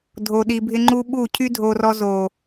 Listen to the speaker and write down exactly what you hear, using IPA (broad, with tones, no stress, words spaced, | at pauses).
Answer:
dʱo˨ɗi˨bʱɪ˧ŋ͡ǃu˧ ɓu˦˨ cʰy˦dʱo˧rɔ˧ zo˨